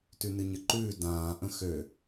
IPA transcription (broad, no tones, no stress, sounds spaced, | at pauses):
t ʉ n ɨ ɲ ə ǃ ʉː d ãː ʔ ə̃ x ø